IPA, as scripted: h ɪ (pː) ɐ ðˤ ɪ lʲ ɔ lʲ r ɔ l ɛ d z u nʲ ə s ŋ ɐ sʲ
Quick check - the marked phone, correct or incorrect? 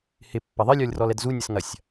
correct